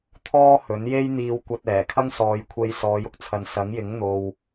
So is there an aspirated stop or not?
yes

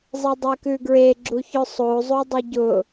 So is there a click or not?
yes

